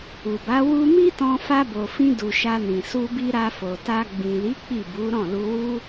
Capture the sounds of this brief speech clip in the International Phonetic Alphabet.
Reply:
u˨ b a˨˦ w u˧ m i˦ t ɔ̃˧ f a˧ b o˨ f ĩ˧ d u˨ ʃ a˧ n ĩ˨ s u˧ b i˧ ɾ a˧ f o˨ t a˧ ɡ͡b ĩ˨ l i˨˦ k͡p i˦˨ b u˨˦ ɾ ɔ̃˦˨ l u˧ w u˦

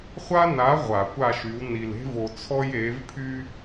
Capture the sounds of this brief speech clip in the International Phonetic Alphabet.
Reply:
χʷ a˦ n a˨˦ ʁʷ a˨˩˦ kʷ a˦˨ ʃ y˨˦ w n i˨ l e̤˦ v o˨ t͡sʰ ɔ˦ j e˨˦ v pʰ y˦

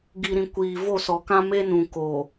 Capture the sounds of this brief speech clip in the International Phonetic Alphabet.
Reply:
ɡ i˨ ɾ ĩ˨ kʷ iː˨ v o˦˨ s ɔ˨ k ã˦ m e˦ n ũ˨ k o˨

